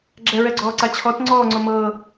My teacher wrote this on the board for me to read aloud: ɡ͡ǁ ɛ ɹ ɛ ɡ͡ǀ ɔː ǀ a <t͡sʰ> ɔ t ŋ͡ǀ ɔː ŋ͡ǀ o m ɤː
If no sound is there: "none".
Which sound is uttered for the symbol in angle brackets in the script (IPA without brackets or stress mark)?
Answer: t͡ɕʰ